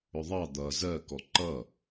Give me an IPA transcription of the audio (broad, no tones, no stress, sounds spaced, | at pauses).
ʊ ðˤ ɑ d̪ ʌ z ɜ k ɔ ǃ ʌ